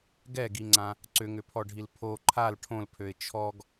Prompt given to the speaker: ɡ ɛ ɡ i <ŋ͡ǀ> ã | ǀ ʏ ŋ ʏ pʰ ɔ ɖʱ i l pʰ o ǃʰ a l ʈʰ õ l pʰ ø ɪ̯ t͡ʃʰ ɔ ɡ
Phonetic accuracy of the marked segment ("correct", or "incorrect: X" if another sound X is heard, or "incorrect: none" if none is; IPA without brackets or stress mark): correct